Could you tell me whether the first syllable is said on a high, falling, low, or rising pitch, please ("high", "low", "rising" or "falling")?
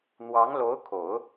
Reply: rising